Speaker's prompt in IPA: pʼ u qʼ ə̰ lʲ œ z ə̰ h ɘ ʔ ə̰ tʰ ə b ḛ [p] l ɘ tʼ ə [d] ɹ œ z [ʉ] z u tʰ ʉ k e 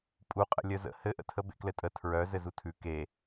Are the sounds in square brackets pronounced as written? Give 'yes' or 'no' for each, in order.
no, no, no

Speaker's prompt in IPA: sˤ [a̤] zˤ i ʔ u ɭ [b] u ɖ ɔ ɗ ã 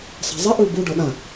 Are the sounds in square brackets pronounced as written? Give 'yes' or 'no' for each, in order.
yes, yes

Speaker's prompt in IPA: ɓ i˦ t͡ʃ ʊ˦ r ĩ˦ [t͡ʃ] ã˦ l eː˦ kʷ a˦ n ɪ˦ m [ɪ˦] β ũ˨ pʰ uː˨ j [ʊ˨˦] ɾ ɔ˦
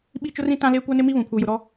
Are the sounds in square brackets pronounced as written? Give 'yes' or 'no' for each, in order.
no, no, no

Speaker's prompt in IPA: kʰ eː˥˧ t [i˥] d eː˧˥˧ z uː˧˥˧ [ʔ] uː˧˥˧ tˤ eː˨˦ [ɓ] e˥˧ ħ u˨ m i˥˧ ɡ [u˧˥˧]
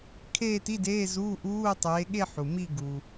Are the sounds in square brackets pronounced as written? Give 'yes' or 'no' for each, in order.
no, yes, no, no

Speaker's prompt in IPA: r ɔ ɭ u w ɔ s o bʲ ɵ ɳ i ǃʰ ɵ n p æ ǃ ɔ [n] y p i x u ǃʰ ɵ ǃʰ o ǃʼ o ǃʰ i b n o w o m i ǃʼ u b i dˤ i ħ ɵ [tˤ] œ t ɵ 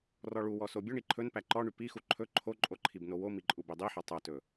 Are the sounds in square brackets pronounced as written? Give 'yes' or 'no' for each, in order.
no, yes

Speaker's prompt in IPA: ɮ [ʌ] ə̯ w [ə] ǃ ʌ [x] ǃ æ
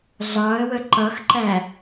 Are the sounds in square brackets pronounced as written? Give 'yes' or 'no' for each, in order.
no, yes, yes

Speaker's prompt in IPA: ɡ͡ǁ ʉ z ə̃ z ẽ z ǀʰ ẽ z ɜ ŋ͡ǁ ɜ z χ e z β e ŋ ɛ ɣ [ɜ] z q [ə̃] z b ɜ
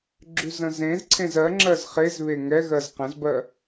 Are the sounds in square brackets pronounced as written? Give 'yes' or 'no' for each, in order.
yes, no

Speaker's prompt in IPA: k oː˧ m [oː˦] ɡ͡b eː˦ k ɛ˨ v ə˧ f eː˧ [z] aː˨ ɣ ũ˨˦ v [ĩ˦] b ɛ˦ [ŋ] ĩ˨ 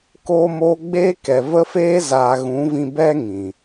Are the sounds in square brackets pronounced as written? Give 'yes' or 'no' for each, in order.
no, yes, no, yes

